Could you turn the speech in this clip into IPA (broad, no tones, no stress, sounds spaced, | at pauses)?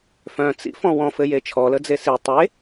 f œ̃ t͡s ḭ f ɔ̃ w ɔ̃ f ɘ j e t͡ʃʰ ɔ l ə d͡z e s i tˤ e